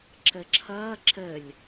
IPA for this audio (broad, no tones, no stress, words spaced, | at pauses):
ǁəǁʰʌː ǁəlʲ